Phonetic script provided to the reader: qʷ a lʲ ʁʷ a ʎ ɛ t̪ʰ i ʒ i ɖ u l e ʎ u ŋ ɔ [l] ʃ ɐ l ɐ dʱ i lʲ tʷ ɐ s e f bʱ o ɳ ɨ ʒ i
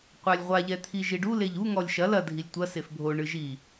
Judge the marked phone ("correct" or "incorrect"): incorrect